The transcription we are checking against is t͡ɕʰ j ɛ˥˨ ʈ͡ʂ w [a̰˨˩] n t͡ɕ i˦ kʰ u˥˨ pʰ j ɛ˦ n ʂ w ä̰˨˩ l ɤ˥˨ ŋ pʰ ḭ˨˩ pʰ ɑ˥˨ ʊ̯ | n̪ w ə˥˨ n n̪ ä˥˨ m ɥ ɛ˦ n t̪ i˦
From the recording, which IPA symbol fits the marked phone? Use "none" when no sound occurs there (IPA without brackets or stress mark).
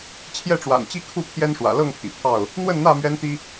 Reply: a̰˨˩